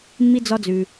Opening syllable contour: high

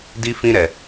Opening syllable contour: high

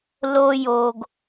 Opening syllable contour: high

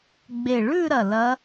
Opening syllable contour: low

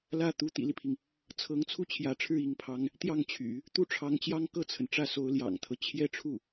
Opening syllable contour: falling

